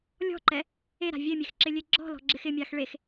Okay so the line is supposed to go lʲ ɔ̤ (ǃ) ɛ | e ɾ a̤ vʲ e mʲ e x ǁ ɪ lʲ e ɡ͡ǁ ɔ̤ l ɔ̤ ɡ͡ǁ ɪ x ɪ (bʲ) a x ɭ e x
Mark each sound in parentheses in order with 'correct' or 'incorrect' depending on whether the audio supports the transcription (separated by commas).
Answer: correct, incorrect